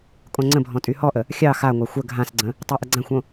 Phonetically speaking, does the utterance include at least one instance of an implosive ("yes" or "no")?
no